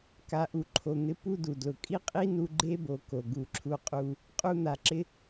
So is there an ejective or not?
yes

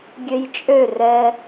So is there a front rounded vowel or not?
yes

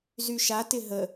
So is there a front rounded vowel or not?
yes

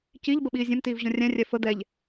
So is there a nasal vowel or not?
yes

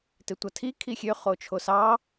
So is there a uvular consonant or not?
yes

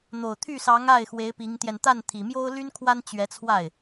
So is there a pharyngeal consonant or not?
no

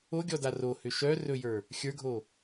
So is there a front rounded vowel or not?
yes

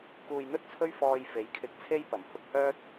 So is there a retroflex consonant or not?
no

